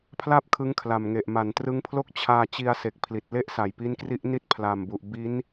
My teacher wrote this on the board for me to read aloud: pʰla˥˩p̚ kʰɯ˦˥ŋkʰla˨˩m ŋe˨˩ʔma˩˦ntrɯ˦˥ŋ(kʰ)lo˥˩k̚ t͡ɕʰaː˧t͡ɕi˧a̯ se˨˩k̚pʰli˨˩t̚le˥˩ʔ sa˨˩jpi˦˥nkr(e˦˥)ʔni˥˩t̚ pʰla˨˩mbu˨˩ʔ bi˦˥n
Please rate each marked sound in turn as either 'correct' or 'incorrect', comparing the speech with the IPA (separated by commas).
incorrect, incorrect